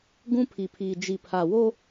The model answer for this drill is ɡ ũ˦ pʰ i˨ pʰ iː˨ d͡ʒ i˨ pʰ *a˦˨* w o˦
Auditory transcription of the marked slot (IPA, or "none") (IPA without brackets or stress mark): a˨